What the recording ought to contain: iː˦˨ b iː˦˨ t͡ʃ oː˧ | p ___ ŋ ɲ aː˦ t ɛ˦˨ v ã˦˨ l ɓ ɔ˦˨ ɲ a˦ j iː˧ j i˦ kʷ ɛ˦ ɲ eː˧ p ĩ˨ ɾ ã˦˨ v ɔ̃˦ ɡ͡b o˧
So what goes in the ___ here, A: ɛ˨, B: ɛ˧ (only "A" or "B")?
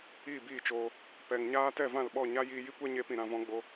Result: A